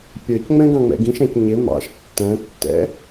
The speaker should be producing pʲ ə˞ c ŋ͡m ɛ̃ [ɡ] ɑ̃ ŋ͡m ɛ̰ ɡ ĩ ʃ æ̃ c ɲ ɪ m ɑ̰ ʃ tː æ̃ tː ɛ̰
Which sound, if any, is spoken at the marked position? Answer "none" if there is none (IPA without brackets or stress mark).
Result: ɡ